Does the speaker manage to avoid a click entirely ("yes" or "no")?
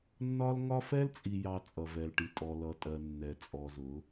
yes